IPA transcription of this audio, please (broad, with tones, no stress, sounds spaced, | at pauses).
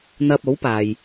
n̪ ɐ˧ p̚ o˨˥ w p aː˨ j